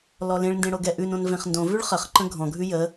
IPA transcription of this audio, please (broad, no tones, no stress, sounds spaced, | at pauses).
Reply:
l ɔ l ẽ ɭ n d ẽ ɽ o ɡ ɛ ʔ ʉ n õ n v ẽ χ n d õ v ʉ ɭ χ ə χ ǃ ə̃ ɡʱ ɔ̃ ɡʱ ʉ j ə